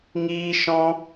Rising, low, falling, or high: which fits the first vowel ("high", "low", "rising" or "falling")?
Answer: high